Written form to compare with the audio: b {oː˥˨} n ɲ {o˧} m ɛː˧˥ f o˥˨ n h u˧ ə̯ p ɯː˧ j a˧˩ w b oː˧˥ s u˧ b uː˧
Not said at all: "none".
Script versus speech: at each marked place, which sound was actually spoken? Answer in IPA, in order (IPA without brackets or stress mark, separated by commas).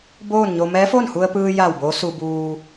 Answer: oː˥˨, o˧